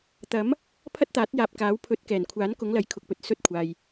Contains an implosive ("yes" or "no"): no